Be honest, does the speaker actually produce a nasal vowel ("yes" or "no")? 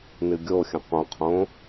yes